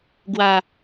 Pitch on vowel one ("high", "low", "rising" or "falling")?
low